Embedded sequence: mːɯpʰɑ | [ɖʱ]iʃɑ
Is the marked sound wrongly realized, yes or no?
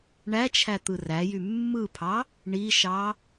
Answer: yes